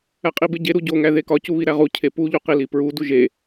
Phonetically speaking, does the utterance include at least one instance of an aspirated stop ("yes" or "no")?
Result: yes